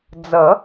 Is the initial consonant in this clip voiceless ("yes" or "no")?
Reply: no